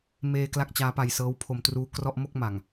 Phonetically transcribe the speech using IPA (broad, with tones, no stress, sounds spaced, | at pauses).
m eː˧ k l a˥˩ k̚ t͡ɕ aː˦˥ p a˧ j s ɤː˦˥ w pʰ o˧ m t r uː˦˥ k r ɔ˥˩ ʔ m o˥˩ k̚ m a˨˩ ŋ